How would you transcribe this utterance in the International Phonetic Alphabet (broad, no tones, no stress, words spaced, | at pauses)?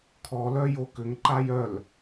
kʰɔlœ jokʏŋǃa jœl